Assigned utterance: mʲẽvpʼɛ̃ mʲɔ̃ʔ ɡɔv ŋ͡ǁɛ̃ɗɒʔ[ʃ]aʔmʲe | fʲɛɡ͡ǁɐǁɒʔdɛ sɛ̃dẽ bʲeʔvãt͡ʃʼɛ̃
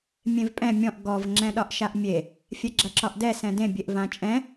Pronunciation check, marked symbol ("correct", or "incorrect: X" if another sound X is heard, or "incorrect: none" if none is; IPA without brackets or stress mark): correct